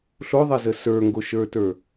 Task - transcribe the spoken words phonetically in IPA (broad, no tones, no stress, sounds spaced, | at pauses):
ɬ o ðˤ e z ə s ə˞ ŋ ɡ o ʃ ə˞ t ə˞